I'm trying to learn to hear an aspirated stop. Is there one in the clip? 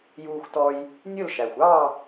no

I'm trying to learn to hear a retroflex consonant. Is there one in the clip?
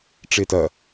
yes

